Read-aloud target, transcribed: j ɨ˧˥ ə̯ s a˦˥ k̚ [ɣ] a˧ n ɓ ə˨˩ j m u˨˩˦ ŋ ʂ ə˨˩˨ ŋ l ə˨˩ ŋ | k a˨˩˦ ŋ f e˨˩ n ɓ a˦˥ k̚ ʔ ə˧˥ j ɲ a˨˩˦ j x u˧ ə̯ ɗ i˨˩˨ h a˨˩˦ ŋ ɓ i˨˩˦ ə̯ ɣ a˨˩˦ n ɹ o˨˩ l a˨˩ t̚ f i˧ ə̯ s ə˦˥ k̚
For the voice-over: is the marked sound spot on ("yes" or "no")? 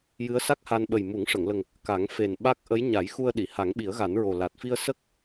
no